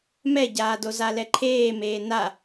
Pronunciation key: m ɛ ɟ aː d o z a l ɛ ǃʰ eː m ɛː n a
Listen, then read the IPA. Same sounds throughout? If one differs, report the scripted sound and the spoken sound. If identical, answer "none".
ɛː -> eː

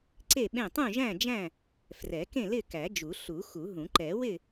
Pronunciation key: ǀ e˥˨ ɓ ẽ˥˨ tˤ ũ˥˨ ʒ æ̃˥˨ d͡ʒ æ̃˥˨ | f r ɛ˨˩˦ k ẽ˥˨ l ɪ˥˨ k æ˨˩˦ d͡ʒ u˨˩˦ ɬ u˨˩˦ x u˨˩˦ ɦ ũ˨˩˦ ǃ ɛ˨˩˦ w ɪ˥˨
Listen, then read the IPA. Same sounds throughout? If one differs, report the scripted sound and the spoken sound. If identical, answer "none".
none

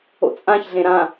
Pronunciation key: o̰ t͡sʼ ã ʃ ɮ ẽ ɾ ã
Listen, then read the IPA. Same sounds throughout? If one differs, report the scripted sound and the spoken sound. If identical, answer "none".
ʃ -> ç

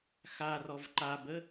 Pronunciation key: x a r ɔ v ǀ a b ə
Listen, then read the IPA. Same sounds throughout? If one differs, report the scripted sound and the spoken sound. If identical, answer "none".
ǀ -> ǃ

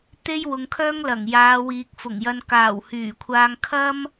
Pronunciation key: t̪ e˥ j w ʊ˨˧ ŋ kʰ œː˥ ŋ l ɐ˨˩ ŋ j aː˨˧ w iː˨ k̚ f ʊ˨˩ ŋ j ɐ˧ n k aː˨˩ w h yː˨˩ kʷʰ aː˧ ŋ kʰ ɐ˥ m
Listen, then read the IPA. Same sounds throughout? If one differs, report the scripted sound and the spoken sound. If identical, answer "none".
none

